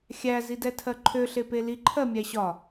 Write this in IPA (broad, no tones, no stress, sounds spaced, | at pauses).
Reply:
xʲ æ z i d ɛ tʰ ɜ ǃʰ ø ɬ e p e l i ǃʰ ɜ mʲ æ ɕ ɒ